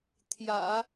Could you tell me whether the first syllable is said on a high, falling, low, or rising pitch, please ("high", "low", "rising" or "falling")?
low